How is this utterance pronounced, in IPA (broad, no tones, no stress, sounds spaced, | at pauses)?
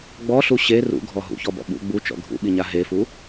ɡ͡b ɔ ɬ u ɕ e r ṵ ɡʱ ɔ ɦ ṵ ç ɔ b ɔ̰ ɓ ṵ ɡ͡b u t͡ʃ ɔ̰ ɡʱ ṵ ɓ i ɲ a ɦ e f u